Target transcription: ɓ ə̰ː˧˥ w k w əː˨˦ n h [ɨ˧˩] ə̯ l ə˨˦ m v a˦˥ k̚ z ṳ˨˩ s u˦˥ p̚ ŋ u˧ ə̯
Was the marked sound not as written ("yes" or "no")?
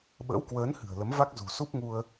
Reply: yes